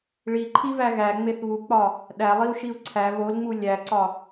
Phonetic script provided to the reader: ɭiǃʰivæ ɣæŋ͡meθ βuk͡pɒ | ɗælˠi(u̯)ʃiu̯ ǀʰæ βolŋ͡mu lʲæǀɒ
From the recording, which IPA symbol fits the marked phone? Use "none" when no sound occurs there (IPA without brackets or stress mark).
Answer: u̯